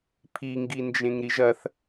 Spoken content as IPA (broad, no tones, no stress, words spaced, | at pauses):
pʰiŋɡind͡ʒẽŋ ɾiʒɐθ